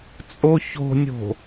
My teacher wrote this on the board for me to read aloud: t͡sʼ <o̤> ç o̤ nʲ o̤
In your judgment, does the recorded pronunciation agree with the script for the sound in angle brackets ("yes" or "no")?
no